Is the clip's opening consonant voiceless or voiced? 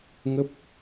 voiced